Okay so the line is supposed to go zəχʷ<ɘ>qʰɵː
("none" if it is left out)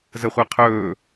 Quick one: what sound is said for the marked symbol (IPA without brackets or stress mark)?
ɛ